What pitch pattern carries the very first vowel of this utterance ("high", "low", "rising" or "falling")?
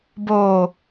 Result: low